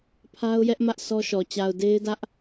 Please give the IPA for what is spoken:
pʰ a˦ ʊ̯ j ɛ˦ ʔ m ä˦ ʔ s ɔ˦ ʃ ɔ˨ t͡ɕ a˨ ʊ̯ d e˦ ɪ̯ d ä˦ ʔ

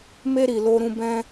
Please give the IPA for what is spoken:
m e˦ ɾ i˨ l o˧ ɾ ũ˧ b ɛ̃˦

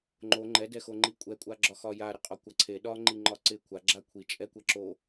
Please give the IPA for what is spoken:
ŋ͡ǃ o ŋ͡ǃ ɛ d ɛ x o ŋ͡ǃ i kʷʼ ɛ kʷʼ a ɡ͡ǁ ɒ x ɒ j a ɾ e qʼ ɒ kʷ a ǀʰ e ɗ ɒ ŋ͡ǃ i ŋ͡ǃ ɒ ǀ ɪ kʷʰ a ɡ͡ǁ a kʷʰ i t͡ʃʼ ɛ kʷ ɛ ǁ o

